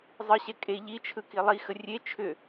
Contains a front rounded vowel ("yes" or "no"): yes